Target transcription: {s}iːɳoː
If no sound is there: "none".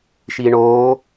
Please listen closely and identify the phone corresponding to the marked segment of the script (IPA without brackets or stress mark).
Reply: ʃ